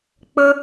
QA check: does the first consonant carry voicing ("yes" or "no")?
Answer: no